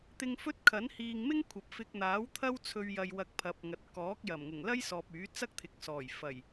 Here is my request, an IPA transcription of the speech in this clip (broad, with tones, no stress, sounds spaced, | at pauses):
t̪ ɪ˧ ŋ f ɵ˥ t̚ kʰ ɐ˨˥ n h iː˨ ŋ m ɪ˥ ŋ kʷʰ ɐ˨˥ p̚ f ɪ˧ k̚ n̪ aː˨˥ w t̪ʰ ɐ˥ w t͡sʰ ɵ˧ ɥ j ɐ˨ j w ɐ˧ k̚ pʰ ɐ˨˥ p̚ ŋ ɐ˨ t̚ k ɔː˨˥ k̚ j ɐ˨˩ m ŋ ʊ˨˩ ŋ l ɐ˥ j s ɔː˨ p̚ yː˨˥ t͡s ɐ˥ k̚ t̪ʰ ɪ˨˥ k̚ s ɔː˨˩ j f ɐ˨˩ j